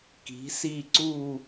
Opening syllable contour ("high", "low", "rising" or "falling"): rising